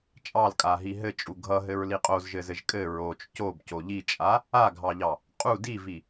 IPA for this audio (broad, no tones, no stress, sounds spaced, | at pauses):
t͡ʃʼ ɑ l kʼ a ɦ i ɦ ɘ t͡ʃʼ u ɡʱ ʌ ɦ ɘ ɹ l i qʼ o z ʒ ɘ z ɘ ʒ kʼ ɘ ɹ o t͡ʃ c o b c o ʎ i t͡ʃʼ a | a ɡʱ ɑ ʎ ɑ | qʼ u d i v i